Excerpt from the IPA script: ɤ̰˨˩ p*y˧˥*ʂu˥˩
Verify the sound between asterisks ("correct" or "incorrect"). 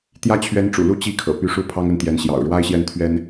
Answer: correct